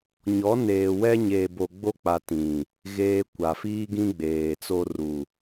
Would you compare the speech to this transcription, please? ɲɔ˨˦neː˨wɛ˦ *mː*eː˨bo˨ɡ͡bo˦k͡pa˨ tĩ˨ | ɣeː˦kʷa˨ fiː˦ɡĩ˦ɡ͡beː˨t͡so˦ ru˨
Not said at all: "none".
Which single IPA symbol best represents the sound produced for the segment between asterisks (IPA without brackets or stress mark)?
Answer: ɲ